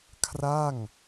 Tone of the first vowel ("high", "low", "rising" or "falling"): falling